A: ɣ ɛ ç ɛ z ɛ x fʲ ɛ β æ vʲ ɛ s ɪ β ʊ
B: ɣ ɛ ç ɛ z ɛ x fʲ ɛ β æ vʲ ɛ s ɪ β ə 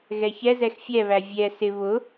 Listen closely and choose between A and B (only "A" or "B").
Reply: A